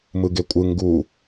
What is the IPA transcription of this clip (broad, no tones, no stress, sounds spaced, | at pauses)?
m ɯ ɡ e kʷʼ ɯ ŋ ɡ u